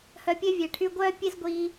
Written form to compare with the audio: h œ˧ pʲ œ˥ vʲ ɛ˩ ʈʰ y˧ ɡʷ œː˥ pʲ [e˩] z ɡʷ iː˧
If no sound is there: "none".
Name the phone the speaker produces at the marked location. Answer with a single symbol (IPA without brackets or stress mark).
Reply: e˥